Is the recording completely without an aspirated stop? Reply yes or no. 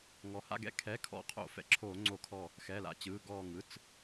no